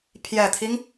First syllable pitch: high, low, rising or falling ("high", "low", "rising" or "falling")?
low